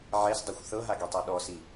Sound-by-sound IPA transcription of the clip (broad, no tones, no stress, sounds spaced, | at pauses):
ʕ ɛ s dˤ a xʷ θ ɤ ɦ a ɡ i tˤ o ɗ ɔ s i